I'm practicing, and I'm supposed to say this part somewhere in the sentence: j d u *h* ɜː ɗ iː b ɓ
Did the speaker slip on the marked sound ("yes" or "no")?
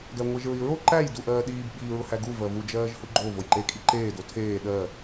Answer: yes